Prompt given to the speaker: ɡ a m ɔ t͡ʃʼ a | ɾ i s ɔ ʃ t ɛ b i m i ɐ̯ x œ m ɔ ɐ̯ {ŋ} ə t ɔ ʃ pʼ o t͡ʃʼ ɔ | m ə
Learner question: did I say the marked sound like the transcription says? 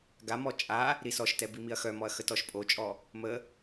no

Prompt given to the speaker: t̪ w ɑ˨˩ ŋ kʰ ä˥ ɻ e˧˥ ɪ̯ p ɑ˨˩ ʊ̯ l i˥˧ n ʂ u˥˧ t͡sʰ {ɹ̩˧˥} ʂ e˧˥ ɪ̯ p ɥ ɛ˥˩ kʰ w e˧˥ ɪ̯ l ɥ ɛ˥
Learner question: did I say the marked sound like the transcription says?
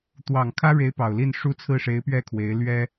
no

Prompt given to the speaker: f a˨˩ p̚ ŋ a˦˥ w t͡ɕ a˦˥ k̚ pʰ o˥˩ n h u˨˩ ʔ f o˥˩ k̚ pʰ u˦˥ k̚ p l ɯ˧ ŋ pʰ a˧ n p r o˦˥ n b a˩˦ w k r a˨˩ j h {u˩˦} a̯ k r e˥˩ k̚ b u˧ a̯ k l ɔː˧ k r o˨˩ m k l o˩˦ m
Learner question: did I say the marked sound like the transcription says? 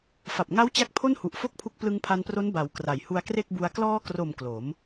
no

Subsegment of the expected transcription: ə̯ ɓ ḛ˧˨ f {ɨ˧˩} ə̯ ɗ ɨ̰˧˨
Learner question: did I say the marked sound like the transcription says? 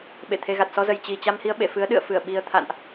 no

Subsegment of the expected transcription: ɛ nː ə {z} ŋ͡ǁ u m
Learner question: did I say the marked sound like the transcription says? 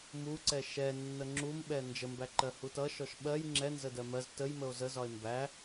no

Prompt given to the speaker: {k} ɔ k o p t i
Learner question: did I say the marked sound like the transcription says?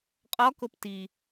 no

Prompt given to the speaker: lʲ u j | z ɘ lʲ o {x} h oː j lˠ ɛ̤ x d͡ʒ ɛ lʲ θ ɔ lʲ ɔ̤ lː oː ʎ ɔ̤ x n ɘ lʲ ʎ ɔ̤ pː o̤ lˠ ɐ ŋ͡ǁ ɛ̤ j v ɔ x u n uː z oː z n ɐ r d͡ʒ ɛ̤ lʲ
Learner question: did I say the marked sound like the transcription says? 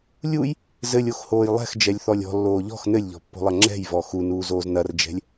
yes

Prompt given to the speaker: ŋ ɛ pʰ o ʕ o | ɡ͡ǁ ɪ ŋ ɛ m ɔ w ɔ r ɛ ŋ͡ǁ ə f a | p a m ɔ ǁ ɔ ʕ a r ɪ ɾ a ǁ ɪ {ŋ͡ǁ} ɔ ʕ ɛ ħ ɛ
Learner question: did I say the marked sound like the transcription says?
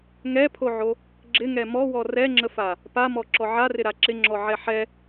yes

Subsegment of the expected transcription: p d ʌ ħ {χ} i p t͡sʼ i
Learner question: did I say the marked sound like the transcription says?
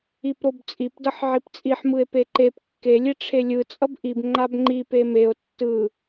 no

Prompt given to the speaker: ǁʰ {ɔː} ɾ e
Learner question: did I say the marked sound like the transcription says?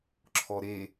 no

